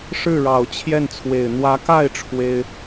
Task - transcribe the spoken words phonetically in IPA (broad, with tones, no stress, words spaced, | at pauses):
ʂɻ̩˥˩ɻɑ˨˩ʊ̯ t͡ɕʰjɛ˥˩nt͡sʰwe˨˩ɪ̯ n̪wä˧˥ka˥˩ɪ̯ ʈ͡ʂʰwe˥ɪ̯